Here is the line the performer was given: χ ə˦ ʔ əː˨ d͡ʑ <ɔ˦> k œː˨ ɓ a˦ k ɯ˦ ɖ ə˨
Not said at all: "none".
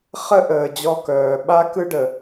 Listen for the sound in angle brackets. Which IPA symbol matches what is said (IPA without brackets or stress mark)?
ɔ˦